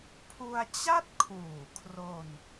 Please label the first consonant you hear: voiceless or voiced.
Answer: voiceless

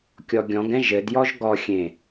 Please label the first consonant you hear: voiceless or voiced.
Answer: voiceless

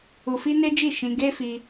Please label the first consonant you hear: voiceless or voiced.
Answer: voiceless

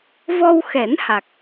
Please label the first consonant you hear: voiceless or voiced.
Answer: voiced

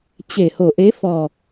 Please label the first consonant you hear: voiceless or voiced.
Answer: voiceless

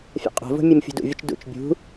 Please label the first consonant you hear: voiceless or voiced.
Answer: voiceless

